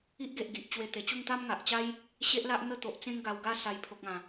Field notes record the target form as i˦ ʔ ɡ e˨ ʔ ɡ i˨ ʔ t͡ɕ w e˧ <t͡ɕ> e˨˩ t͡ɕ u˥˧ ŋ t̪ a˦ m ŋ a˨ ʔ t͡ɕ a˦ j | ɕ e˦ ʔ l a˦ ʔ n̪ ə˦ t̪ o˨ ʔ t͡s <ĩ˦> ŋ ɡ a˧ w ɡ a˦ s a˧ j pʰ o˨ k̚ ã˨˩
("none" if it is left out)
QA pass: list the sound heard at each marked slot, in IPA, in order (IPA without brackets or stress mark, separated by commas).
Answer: t̪, ẽ˦